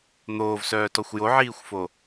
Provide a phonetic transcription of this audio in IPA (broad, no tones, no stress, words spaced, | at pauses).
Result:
n̪oːvsœːtɔxʷ joʕiːxʷfo